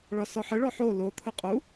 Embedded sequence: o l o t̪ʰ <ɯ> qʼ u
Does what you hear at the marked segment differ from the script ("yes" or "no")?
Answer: no